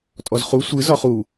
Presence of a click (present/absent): absent